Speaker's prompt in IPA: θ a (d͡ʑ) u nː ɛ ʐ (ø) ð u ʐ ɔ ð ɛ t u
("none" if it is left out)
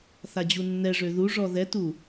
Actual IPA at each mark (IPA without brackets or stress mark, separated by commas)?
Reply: d͡ʑ, ø